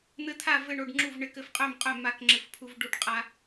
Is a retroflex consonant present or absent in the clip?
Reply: present